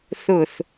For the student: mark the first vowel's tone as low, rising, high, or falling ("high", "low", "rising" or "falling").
low